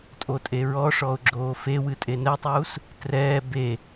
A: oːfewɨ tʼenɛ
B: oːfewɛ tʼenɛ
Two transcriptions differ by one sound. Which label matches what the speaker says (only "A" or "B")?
A